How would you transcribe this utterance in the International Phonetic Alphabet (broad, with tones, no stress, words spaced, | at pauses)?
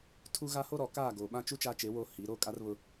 tʰu˦ ɣa˦ho˦ ɾɔ˨ kaː˦˨ɡoː˨ɓã˦t͡ʃu˦ t͡ʃaː˦t͡ʃe˨˦wo˦˨ hi˨˦ ɾoː˦kʼa˦rβʊ˦